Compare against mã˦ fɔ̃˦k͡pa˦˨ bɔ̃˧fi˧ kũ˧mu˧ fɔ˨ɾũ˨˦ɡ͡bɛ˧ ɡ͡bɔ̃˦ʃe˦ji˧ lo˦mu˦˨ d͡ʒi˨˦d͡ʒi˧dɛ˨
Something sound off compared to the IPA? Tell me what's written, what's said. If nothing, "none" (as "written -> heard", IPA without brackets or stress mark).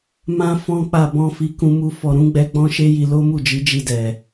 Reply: none